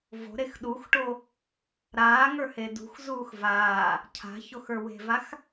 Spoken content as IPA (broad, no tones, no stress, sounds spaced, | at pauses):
v o̤ ɾ e x ɗ u x ʈ o | ɾ aː ŋ ə˞ h e d ṳ x z uː x v aː | cʰ a̤ ç o x ə˞ w e̤ v a x